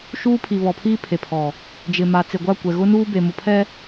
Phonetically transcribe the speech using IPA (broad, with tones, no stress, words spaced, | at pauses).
ʃuː˦ pʰi˨βɔ˨pʰiː˦ pʰe˨pʰɔ˨ | d͡ʒɪ˨ ma˨t͡se˨ɡʷa˦˨kʷɛ˨ ɣʊ˦nuː˦be˨ mʊ˨pʰɛ˦